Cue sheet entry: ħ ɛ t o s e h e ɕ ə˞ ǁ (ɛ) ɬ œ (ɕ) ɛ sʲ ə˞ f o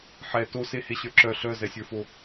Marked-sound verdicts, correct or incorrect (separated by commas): incorrect, incorrect